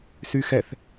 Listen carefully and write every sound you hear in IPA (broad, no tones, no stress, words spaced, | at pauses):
syxɛθ